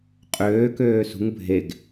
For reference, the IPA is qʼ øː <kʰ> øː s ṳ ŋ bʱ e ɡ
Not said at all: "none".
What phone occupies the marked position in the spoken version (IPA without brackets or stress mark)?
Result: k